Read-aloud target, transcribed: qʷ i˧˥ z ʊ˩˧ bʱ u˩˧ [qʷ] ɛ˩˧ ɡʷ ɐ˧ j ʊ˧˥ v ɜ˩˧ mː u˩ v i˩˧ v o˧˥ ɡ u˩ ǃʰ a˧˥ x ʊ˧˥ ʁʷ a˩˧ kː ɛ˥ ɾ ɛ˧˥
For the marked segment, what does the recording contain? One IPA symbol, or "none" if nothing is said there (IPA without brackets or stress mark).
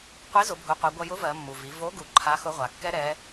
qʷ